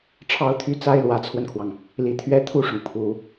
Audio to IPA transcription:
ʈ͡ʂʰɑ˥ʊ̯t̪ʰy˥t͡sa˥ɪ̯ lwä˧˥t͡sʰwə˧nkʰwɑ˩ŋ | li˧˥t̪ʰɥɛ˥ t̪ʰu˥˩ʂʊ˩ŋ pʰu˨˩˦

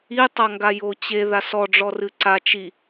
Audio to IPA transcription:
itˤaŋɡa jot͡ɕe ðasɔɖ͡ʐɔrɨ ǀa t͡ʃi

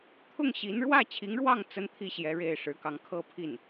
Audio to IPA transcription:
t̪ʰʊ˥˩ŋɕi˧˥n ɻwä˥˩t͡ɕʰi˧˥ŋɻwɑ˥˩ŋ t͡sə˥nt̪ʰi˥˩ɕjɛ˧˥ ɻe˥˩ɪ̯ʂɻ̩˧˥kɑ˧˥ŋ kʰɤ˥pʰi˥˩n

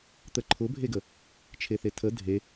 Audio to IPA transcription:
t̪əǃʰʊbʱeɡə | t͡ʃʰeθetʰə dʱe

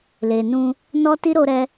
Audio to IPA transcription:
le˨nũ˧ | nɔ˦ti˦ ɾo˦ɾɛ˦

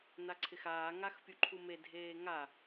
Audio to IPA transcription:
naǀʰɪxaː ŋaxpʲuǃʰume dʱeːŋa

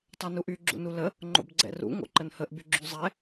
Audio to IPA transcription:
tˤɛnuʔy ɡ͡ǁṵnulə | ŋ͡ǃo̰bɡ͡ǀɛ̰rṵ ŋo̰ǃənhəʔ byɡ͡ǁyzˤɛ

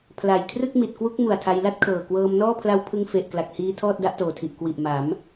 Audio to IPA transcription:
pʰla˨˩j kʰrɯ˥˩k̚mi˨˩t̚ kwu˦˥k̚ mu˨˩a̯tʰa˧j la˥˩t̚kʰɤː˨˩ kwɤː˧m nɔː˥˩pʰla˦˥wpʰɯ˧ŋ fe˨˩ʔ kla˨˩k̚hiː˧ tʰɔː˥˩t̚da˦˥ʔtoː˨˩tʰi˨˩ʔ kwi˨˩ʔma˩˦m

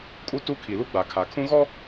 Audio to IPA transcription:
kʼu˦tu˦kʰi˨ lu˦ɡ͡ba˨kʰa˨ kʰũ˦ɣɔ˦

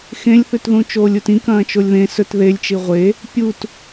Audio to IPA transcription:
xẽlʲθʉtðũ t͡ʃoːlʲutĩkɐ̃ː t͡ʃolʲðẽ sɵt ðelʲt͡ʃi ʁʷe | pʲut

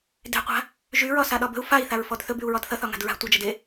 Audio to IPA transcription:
de̤qʷa̤ | ʒyɹɒ saɗɒbə̤u̯ fai̯θaɹfɔd θɵbyu̯ɹɒd θʌθɒ ŋa̤dɹa̤ tʷʌd͡ʒʌd e

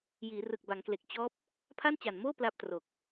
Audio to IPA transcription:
jiː˩˦rɯ˨˩k̚ ba˩˦ŋkle˨˩k̚ t͡ɕɔː˦˥p̚ | pʰa˥˩nt͡ɕa˨˩nmoː˥˩ pla˥˩p̚tro˨˩k̚

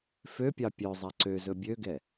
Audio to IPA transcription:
føpʲɑ pʲœzˤæ ǀøzɵ bʲøɡɛ

